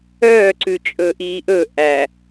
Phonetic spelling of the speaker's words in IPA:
œːǀʉ t͡ʃʼɵʔiːʔɵ ʔæ

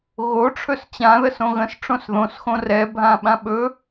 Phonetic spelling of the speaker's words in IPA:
ɣoʈ͡ʂʰɵs t͡ɕãðəs õɣə̃s ʈ͡ʂõsðõsxõ rɛ bʱãɓãɓɵ

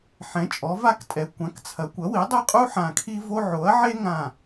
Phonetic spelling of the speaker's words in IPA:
ħɛ̃˩˥t͡ʃʼɔ˩˥va˥ktʼɛ˩˥ kʷã˩˥kt͡sʰɐ˩˥ kʷɐ˩˥wi˩˥ dˤe˥qʼu˥ ħã˧˩ kʰi˥vo˥ ʕo˩˥ɐ̯ʕe˥ ŋã˧˩

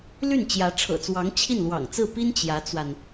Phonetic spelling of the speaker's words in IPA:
ly˥˩nt͡ɕjä˧˥ ʈ͡ʂʰɤ̰˨˩t͡swɑ˧˥ŋt͡ɕʰi˥˩n lwɑ̰˨˩ŋt͡sɹ̩˥˩pi˥n t͡ɕjä˧˥t͡swa˧n

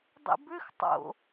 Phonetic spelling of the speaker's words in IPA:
dˤḭbʏx tˤo̰

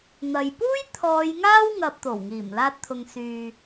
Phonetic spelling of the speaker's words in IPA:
n̪ɐ˨j puː˥j t̪ʰɔː˨˧jŋaː˥w ŋɐ˧p̚t̪o˨˩wŋiː˨˩m laː˧t̚t̪ʰʊ˨ŋ syː˨

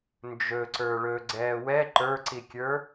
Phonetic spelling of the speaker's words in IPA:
nd͡ʒɵǀə˞ ɭɵɡ͡ǀɛː wɛ ǃə˞ǀikʲə˞

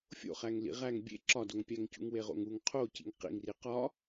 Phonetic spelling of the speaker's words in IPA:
fʲo̰χæŋ lḭʁæŋ bʲḛ ǁɒdoŋpʲæŋcṵŋ weʁo̰ŋuŋ qʰocḭŋ qḭŋri qɒ

